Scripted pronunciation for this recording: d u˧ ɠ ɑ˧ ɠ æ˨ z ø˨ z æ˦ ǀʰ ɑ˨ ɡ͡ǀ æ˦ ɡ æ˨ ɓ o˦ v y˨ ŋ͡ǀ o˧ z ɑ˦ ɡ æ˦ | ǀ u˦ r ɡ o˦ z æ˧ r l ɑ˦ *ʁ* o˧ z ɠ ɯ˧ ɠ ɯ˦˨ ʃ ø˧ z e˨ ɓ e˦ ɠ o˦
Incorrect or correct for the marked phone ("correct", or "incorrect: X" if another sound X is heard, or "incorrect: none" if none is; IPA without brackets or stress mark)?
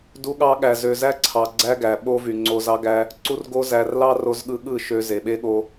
incorrect: r